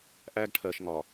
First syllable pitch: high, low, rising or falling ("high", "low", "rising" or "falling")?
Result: high